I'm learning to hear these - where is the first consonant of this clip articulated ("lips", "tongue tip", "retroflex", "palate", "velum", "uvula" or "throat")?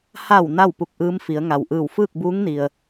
throat